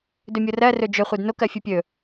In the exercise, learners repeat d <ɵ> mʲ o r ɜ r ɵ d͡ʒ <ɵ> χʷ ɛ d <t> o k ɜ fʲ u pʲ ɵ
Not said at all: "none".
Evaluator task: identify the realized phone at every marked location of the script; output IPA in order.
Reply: ɵ, ɵ, n

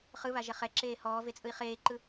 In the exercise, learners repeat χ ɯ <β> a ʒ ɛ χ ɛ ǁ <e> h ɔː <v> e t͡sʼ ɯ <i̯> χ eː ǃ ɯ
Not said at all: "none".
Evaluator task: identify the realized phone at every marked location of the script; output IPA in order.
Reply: β, eː, v, i̯

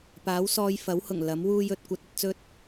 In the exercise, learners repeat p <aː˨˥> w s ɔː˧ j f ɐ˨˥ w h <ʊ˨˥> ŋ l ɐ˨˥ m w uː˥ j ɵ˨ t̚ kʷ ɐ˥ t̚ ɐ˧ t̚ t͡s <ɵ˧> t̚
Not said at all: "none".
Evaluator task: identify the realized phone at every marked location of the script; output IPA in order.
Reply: aː˨˥, ʊ˨˩, ɵ˥

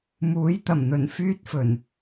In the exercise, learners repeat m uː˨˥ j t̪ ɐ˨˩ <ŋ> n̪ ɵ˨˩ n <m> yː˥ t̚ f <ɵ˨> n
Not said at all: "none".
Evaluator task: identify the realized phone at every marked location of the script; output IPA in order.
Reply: m, f, ɵ˨˩

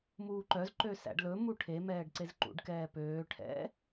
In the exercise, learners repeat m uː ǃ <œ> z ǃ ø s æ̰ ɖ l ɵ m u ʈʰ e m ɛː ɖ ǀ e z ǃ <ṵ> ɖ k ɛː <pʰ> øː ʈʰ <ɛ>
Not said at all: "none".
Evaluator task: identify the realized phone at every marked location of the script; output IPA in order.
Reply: œ, ṵ, p, ɛ̰

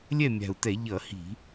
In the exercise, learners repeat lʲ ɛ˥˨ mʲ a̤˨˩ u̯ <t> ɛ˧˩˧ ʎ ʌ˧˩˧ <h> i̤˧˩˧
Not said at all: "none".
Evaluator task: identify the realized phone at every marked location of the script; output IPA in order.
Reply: t, h

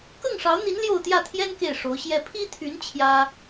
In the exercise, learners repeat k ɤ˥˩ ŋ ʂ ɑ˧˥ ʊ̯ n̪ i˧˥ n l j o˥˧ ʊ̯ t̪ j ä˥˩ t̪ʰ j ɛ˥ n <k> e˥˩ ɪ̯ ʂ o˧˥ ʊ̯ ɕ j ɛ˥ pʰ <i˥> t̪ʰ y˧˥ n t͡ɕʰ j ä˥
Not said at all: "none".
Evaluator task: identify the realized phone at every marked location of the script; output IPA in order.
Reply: k, i˥

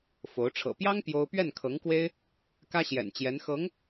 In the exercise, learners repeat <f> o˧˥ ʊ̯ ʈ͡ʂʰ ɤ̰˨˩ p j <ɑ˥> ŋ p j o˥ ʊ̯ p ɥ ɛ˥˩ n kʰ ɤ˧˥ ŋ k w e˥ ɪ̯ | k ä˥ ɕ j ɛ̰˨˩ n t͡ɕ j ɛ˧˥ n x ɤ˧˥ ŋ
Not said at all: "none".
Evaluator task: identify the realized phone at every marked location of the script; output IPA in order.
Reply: f, ɑ˥

